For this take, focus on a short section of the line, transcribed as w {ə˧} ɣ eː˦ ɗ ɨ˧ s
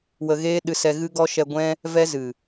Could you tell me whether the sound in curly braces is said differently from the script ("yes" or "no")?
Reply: no